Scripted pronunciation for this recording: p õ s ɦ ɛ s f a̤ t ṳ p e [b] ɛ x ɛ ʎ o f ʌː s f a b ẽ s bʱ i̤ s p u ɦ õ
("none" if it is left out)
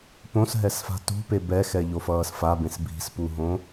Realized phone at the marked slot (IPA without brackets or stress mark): b